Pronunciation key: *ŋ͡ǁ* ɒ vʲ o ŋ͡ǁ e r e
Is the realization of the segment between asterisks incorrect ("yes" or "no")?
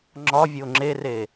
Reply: no